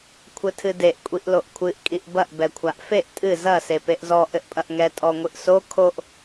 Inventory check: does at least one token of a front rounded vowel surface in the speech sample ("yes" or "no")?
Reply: no